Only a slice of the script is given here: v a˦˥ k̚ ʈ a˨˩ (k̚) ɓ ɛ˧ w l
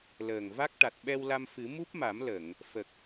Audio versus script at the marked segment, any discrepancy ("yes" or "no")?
yes